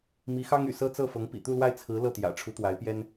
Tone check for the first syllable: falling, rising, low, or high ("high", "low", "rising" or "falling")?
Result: rising